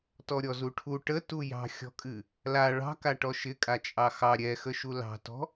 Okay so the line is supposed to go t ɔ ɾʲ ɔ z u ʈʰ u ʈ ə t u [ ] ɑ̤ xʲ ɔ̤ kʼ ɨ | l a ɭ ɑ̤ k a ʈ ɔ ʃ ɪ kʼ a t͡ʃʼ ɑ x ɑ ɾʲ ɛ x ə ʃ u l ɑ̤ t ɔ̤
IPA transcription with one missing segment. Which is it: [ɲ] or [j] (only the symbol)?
j